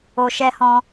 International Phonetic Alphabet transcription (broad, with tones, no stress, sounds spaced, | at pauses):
o˧ ʃ ɛ˦ h ɔ̃˦